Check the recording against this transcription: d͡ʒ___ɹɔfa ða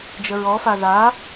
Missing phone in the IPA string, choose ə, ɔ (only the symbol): ə